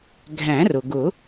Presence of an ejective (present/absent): absent